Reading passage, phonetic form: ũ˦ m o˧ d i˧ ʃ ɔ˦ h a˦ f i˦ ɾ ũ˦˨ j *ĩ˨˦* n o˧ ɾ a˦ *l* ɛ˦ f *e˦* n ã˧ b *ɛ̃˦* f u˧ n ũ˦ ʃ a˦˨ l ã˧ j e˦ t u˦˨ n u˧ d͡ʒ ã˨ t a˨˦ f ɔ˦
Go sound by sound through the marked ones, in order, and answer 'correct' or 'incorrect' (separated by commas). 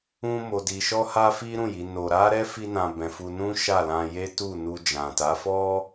incorrect, incorrect, incorrect, incorrect